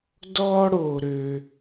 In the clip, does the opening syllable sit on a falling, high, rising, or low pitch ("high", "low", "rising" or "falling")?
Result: high